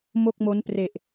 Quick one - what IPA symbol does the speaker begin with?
m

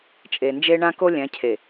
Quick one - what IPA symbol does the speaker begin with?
t͡ʃʼ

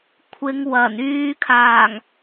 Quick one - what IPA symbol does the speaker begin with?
kʷʰ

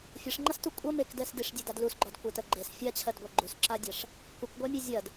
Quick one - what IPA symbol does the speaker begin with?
fʲ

